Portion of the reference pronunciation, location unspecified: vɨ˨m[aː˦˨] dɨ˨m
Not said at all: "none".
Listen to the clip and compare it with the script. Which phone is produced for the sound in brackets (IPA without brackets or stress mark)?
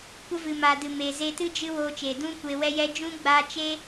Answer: aː˨